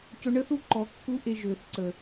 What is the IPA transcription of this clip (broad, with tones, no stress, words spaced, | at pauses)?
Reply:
cɵ˧ɳə˦θu˦ǃɔ˨ kːu˧ ʔe˧ʒøː˨θǀə˨